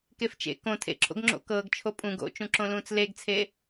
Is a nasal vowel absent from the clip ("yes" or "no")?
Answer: no